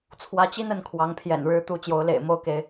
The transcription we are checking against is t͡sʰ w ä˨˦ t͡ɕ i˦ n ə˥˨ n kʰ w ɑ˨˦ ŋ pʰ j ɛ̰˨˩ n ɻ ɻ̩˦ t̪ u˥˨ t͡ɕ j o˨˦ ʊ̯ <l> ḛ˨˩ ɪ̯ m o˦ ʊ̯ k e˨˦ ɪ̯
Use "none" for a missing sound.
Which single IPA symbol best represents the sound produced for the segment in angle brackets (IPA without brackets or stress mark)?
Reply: l